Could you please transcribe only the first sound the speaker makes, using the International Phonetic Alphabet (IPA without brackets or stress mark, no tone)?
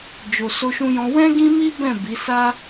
d͡ʒ